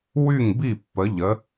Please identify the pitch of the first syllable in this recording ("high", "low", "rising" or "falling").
falling